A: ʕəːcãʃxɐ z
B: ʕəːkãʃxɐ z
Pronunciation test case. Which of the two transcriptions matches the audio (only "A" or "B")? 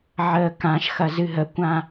B